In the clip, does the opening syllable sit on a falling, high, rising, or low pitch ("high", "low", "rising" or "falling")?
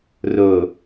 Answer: low